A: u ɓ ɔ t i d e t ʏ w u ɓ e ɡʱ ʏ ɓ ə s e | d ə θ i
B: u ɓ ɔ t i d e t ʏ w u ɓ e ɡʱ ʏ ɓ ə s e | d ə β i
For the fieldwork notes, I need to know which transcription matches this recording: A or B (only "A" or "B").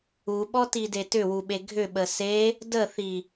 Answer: A